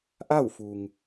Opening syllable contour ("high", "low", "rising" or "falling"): falling